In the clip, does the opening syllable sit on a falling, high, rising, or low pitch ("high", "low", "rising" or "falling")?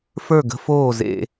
falling